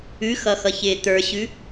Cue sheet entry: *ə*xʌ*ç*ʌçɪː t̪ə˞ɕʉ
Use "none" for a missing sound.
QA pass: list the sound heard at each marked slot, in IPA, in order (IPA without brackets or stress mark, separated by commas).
ʉ, x